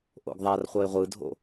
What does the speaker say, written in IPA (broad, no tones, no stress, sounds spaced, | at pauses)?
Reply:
ʔ o̰ ɡ ðˤ a r χʷ ʌ ɪ̯ ʁʷ ɯ dʱ o̰